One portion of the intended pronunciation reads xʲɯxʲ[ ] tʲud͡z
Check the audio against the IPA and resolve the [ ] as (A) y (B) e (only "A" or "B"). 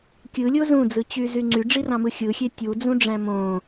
B